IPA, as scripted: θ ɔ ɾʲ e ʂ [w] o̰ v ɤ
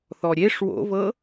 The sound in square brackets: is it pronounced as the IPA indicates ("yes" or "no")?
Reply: yes